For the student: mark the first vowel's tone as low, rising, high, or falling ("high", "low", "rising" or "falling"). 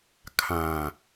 low